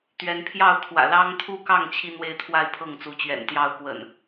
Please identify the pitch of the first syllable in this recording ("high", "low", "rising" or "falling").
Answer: rising